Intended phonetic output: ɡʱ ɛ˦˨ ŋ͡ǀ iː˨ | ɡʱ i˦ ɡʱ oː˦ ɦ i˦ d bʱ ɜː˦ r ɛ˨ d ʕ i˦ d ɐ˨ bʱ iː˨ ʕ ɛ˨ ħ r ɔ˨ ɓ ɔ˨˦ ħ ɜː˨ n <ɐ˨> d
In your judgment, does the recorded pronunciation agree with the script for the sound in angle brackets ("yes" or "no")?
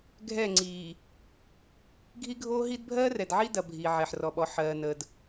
no